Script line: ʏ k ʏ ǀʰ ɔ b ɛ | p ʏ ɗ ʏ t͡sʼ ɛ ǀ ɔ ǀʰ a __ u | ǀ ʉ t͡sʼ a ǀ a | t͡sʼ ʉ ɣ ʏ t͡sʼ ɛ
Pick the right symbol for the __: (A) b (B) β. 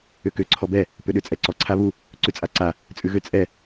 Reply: B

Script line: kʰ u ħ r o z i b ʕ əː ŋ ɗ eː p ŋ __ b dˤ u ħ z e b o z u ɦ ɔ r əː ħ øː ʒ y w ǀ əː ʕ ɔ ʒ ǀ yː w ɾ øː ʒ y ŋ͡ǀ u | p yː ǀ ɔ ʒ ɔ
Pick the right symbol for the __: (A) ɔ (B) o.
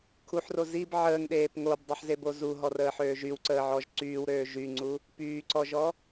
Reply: B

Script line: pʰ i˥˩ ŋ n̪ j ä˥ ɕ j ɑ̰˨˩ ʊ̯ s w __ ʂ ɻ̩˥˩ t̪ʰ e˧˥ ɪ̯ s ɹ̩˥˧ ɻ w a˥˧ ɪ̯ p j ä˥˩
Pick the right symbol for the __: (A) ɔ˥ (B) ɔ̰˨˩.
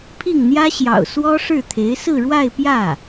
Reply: A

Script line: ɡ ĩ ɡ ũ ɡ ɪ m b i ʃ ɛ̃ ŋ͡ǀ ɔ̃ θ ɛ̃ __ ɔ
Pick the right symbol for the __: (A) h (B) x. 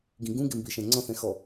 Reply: B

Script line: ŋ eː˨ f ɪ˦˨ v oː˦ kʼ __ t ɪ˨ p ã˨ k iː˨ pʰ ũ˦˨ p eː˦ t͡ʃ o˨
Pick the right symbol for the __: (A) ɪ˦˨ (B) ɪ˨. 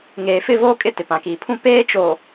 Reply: A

